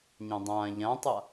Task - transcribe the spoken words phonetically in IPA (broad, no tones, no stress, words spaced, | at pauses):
ɲãdˤãːʎãtˤa